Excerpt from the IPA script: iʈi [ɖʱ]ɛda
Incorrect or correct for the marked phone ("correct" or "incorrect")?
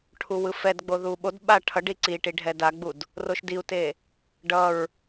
correct